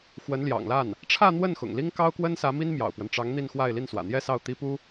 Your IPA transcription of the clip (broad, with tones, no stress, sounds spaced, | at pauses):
x w ə˧˥ n l j ɑ̰˨˩ ŋ l a˥˩ n | ʈ͡ʂʰ ä˥˧ n̪ w ə˥˩ n x ʊ̰˨˩ ŋ l i˥ ŋ k ɑ˥ ʊ̯ k w ə˥ n s ä˧˥ m i˥ n m j ɑ̰˨˩ ʊ̯ p w ə˦ n ʈ͡ʂ ɑ˧˥ ŋ n̪ i˥˧ n x w a˥˧ ɪ̯ l i˥˩ n s w ä̰˨˩ n̪ j ɛ˥˧ s ɑ˥˩ ʊ̯ t̪ i˥ p u˥